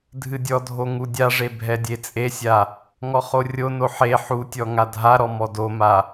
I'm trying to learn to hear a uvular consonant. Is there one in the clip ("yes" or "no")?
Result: yes